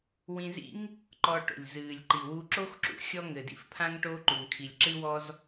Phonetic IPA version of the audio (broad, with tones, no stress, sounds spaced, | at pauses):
w ĩ˧ z ḭ˥ ŋ | ǃ ɔ˧ ʈ o̰˩ lʲ z ɨː˩ lʲ ǃ i˩ w u˧ ǁ o˥ x ǁ ṵ˧ xʲ ɔ˥ ŋ ɘ˩ d ḭ˥ f pʰ ã˥ ŋ ʈ o˧ ǃ u˩ ŋ kʰ i˩ lʲ ǁ ɨ˥ w ɔ˥ z